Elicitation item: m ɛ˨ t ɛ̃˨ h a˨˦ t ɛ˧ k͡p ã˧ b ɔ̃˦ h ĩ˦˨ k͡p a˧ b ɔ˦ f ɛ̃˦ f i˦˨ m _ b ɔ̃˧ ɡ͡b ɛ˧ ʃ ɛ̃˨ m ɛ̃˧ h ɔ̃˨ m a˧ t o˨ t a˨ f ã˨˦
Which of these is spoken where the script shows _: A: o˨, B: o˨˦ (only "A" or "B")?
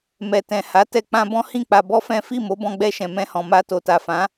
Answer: B